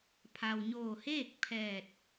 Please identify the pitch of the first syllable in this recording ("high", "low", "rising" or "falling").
low